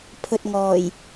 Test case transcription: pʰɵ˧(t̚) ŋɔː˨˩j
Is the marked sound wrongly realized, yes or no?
no